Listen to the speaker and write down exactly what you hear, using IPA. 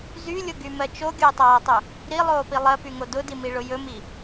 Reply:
z y lʲ ʊ ɡ y m ɜ t͡ʃ o ɡʲ ʊː tˤ aː tˤ ɵ | ɾ i lˠ oː p i lˠ ɜ p y ŋ o d ʊ d i m i ɭ ʊ j ɵ m i

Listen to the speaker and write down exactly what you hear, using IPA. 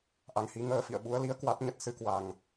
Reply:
ʔ a˨˦ ŋ h i˨˦ ŋ əː˧ f ḭ˧˨ ə̯ ɓ u˨˦ ə̯ l i˨˦ ə̯ k w a˦˥ t̚ ɲ ə˦˥ t̚ s ɨ˨˦ k w a˨˩ ŋ

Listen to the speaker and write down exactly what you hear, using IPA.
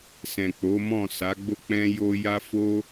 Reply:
s ɛ̃˨ k͡p o˨˦ m ɔ̃˦˨ s a˨˦ ɡ͡b o˦ k͡p ɛ̃˦ j o˦ j a˦ f o˦

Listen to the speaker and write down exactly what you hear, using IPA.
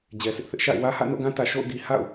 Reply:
d͡ʑ ɛ˨ s ɪ˦ ʔ θ ɪ˦ ʔ ʃ a̰˦˨ ɪ̯ w ä˦ h ä̰˦˨ n o̰˦˨ ɡ ã˦ t ä˨ ʃ o̰˦˨ ʊ̯ ɡ i˨ h a̰˦˨ ʊ̯

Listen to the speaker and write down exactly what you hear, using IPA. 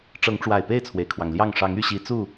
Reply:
ʈ͡ʂ ɤ˨˦ ŋ ʈ͡ʂ w a˨˩ ɪ̯ p e˥˨ ɪ̯ t͡sʰ w e˩ ɪ̯ kʰ w ɑ˩ ŋ l j ɑ˥˨ ŋ ʂ ɑ˨˦ ŋ y˥˨ ɕ i˨˦ t͡s u˥˨

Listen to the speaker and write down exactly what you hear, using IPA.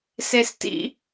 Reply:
s e s t ḭ

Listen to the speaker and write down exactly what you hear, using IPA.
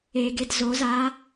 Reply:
e ɡ e d z o z a

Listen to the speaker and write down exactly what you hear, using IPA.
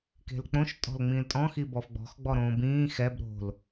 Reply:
k e̤ l k͡p õ ʃ tʼ ɔ̤ l ŋ͡m ĩː l tʼ ɔ̃ x i b ɔ f ɡ͡b ɔ̤ x ɡ͡b ɔ ɾ õː b ĩː x ɛ b ɾ o̤ l

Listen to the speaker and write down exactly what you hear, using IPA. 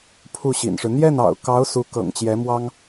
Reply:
pʰ u˥˩ ɕ ḭ˨˩ n ʂ ɻ̩˦ n̪ j ɛ˥˩ n ɑ̰˨˩ ʊ̯ k ɑ˧˥ ʊ̯ s u˧˥ k ɤ̰˨˩ ŋ t͡ɕ j ɛ˧˥ m w ɑ˥ ŋ

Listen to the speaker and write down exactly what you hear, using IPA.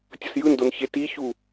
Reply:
tʲ ʌ s j ɯ n d o n ç e t i ç u

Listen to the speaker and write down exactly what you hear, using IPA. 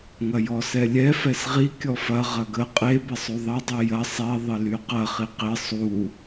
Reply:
ŋ ɐ j ɔ s ɛ lʲ ɛ f ɛ s ʁ i kʲ ɔ f ɐ ʁ ɐ ɡ ə qʼ e b ɪ sˤ u ðˤ ɐ dˤ i j ɐ sˤ ɛ ðˤ ɪ l y q ɐ χ i q ɪ sˤ u

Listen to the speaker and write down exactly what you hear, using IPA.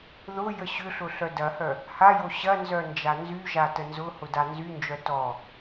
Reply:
ð ʊ j ə ɕ ʏ ɬ ʊ ɬ œ d ɐ h œ | h a j o ɕ ɐ n z œ n d͡ʒ a n z y ʒ a t ə n z ʊ h ʊ d a n z y n d͡ʒ œ t ɔ

